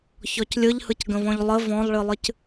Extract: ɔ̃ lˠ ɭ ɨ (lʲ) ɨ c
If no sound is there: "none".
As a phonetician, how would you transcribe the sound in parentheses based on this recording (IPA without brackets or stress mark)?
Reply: lˠ